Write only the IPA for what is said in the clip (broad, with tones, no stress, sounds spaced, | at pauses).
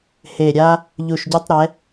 h e˨˩ ɾʲ a˧ | ʎ u˨˩ ʃ ɟ ɵ˧ tˤ ɾ ɛ˩˧